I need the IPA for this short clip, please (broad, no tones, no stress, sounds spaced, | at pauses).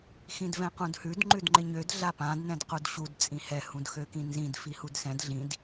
x ĩ d v ɛ̃ q ũ d h ʉ d ŋ͡ǃ ʉ d ŋ͡ǃ ɪ ɲ ø d ɮ a p ã d n ɛ̃ d q u d ɕ u d t͡sʼ ĩ h ɛ h ũ d x ø k ĩ n z ĩ d f i h u d s ɛ̃ d ɮ ĩ d